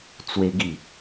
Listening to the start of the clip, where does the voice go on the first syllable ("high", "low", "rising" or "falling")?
high